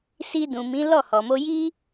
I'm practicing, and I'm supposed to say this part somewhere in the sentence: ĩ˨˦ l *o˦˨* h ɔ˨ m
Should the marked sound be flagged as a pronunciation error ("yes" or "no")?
yes